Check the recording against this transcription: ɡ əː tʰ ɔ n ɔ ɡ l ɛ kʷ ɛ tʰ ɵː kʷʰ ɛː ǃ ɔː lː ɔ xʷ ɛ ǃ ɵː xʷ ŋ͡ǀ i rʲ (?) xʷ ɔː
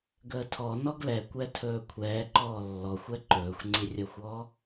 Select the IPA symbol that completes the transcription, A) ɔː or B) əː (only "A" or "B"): B